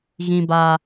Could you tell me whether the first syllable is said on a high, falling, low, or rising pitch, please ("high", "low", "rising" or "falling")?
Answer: high